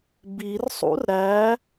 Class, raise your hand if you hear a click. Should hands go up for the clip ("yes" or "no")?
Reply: no